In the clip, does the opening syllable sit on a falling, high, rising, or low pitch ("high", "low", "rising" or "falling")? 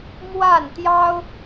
falling